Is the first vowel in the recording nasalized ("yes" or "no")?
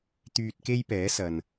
no